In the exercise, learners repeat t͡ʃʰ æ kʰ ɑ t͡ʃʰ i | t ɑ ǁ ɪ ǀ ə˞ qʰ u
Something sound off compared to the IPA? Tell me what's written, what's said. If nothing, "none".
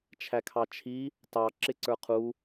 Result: none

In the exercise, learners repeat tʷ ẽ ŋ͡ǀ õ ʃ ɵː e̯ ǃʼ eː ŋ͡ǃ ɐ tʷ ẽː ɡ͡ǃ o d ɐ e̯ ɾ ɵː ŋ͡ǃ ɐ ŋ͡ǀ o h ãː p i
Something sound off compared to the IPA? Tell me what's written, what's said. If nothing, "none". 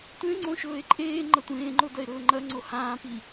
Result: ɡ͡ǃ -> ŋ͡ǃ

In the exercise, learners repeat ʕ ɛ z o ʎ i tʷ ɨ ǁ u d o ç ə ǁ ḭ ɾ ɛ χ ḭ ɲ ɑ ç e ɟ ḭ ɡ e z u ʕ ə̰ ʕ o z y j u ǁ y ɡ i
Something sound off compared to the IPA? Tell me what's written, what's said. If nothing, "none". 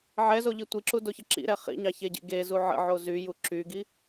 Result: ɨ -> i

